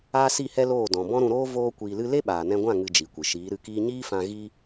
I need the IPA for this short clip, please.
aː˦ s i˦˨ h ɛ˦ l oː˦˨ d ɔ̃˨ b ɔ̃˦ ɾ ũ˧ ɾ oː˦ v oː˦ kʷ iː˧ l ɨ˦ l e˦ ɓ aː˨ n ɛ̃˧ ɡʷ ã˦˨ ŋ ɨ˧ d͡ʒ i˨ kʷ ɨ˨ ʃ iː˨˦ ɾ ɨ˧ k iː˦ ɲ iː˦ f ã˧ ɣ i˦

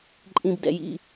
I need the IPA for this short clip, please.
ǃʼ ĩ˩ b d ɛ̰˩ j ḭ˩

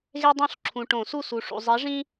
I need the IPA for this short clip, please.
ɣ e˦ dˤ õ˥˩ ɬ ǁʰ ũ˨ ʈ õ˨˩˦ s u˥˩ s u˨ ʂ ṵ˨ zˤ e˨˥ ʐ ĩ˦

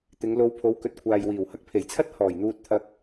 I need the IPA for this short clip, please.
t̪ ɪ˨˧ ŋ l o˧ w pʰ o˨˧ w k ɵ˨ t̚ kʷʰ aː˨ j w iː˨˩ w h ɐ˧ k̚ pʰ e˨˩ j t͡sʰ ɐ˥ t̚ h ɔː˨˩ j n̪ uː˧ t̚ t̪ʰ ɐ˧ k̚

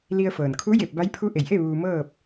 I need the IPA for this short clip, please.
l i˧ ə̯ f ɤː˩ n kʰ u˧˥ j e˧˩ p̚ b a˧˥ j pʰ u˧˥ ʔ e˩ j ʔ e˥˨ ʋ uː˧ m ɤː˥˨ p̚

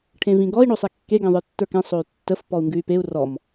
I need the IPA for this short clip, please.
ʈʰ ẽ v ĩ ɡ ɔ i̯ ɳ o sˤ ɛ kː e ɡ ɛ̃ ðˤ ə˞ tː ə˞ k ɛ̃ sˤ o y̯ tː ə f p ɔ u̯ ŋ ɡ ʉ y̯ p e u̯ r ɔ m

